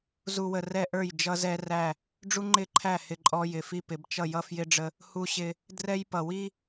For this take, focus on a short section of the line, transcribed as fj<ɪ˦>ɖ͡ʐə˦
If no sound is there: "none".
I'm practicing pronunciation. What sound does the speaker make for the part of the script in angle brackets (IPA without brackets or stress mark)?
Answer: ɪ˦